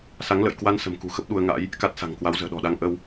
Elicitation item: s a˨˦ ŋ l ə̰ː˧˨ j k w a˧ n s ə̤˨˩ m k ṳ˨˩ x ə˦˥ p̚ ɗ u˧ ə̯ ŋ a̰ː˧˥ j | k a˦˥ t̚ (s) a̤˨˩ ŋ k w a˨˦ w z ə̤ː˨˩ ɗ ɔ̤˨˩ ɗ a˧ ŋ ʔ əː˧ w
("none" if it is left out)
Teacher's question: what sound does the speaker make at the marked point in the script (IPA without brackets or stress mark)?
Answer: s